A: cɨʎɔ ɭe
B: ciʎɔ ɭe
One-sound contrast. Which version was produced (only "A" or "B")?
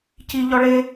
B